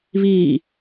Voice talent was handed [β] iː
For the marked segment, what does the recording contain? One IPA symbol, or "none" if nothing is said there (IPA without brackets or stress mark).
β